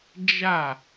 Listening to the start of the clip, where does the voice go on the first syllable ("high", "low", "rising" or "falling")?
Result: falling